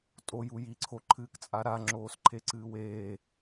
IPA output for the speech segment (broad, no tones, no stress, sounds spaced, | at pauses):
tʼ o j u j i ǀʰ o ǃʰ ɨː k t͡sʼ a ɾ a ŋ͡ǁ oː s ǃʰ e ǀ ɨː w eː